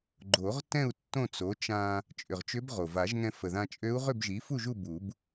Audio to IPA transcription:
ɡ͡ǃ o˨˩˦ ʁ t ɛ̃˥˨ u̯ tː õ˥˨ t͡s o˩˥ t͡ʃ ã˧ | t͡ʃʼ ʏ˨˩ ʁ t͡ʃ ʏ˧˥ b ʁ o˨˩ v a˨˩˦ ʒ ŋ ɛ̃˧ f ə˨˩ ð ã˧ t͡ʃʼ ø˧˥ u̯ ʁ ʏ˥˨ b ʒ i˩˥ f u˥˨ ʒ u˥˨ b u˨˩˦ b

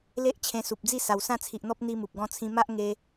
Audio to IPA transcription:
l e˦ ʔ t͡ɕʰ ẽ˧ s u˨ p̚ d͡z i˥˧ s a˨˩ w s ã˥˧ t͡sʰ i˨ ʔ n̪ ɔ˦ p̚ n̪ i˦ m u˨ p̚ ɡ ɔ̃˦ t͡sʰ ĩ˦ m a˦ ʔ ŋ e˧

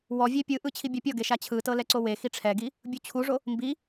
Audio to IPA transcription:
w ɔ vʲ e pʲ ɯ ʔ ɯ t͡ɕʰ i bʲ a pʲ ɔ ɡ e ʃ a t͡ɕʰ ɯ t ɤ l ɛ ǀ o w e x i ʈ͡ʂʰ ɛ ɡ i | bʲ u t͡ɕʰ u ʐ o | m b i

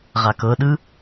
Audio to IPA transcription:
ʁ a k ɤ ɗ ɯ

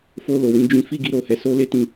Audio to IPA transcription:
f o˧ l o˨ w ĩ˧ d͡ʒ ĩ˧ f i˦ ɡ i˦ ɾ o˧ h ɛ˧ s o˦ l e˦ t ĩ˧

